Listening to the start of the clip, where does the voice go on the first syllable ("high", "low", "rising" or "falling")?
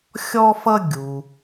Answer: high